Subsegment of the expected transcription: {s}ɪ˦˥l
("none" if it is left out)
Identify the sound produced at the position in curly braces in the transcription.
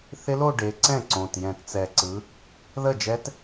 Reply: θ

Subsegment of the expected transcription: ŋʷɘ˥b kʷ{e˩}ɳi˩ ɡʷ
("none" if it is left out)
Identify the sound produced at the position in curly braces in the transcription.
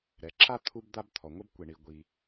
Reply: e˩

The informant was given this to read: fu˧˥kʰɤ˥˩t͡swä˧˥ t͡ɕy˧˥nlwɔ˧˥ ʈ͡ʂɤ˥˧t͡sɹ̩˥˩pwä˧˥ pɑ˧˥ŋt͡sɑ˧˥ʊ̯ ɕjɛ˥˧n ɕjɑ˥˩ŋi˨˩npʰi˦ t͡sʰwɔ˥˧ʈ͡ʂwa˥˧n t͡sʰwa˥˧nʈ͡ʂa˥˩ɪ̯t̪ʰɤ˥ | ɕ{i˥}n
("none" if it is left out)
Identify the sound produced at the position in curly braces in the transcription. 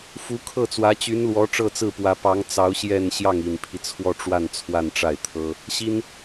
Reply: i˥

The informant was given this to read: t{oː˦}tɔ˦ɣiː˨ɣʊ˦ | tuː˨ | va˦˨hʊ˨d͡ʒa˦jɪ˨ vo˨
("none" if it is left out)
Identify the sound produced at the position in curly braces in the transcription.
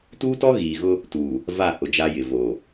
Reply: uː˦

